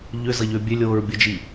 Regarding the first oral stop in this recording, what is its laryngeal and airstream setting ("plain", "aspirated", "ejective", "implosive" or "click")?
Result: plain